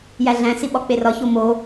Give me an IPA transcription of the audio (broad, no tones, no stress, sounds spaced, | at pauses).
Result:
j æ ɮ æ̃ s i ɓ ɒ k͡p e r ɒ ç o m o